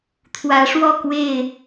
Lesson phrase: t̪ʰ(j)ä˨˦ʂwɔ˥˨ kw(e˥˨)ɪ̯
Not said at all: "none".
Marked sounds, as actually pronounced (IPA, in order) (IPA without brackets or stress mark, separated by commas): w, e˥˨